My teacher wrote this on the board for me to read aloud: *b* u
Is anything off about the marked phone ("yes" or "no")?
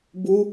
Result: no